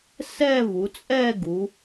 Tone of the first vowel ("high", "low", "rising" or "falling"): falling